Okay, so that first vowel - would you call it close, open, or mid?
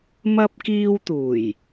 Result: open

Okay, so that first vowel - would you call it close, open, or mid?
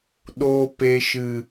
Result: mid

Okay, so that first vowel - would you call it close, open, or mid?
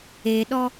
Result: mid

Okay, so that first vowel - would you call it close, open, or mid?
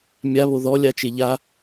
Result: open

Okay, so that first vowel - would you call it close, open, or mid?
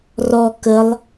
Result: mid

